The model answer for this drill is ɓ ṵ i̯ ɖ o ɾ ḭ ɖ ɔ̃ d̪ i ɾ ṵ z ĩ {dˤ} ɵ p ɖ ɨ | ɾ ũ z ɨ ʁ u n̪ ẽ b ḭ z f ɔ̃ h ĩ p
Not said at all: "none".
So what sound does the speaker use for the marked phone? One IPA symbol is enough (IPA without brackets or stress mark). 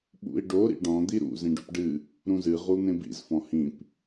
ɖ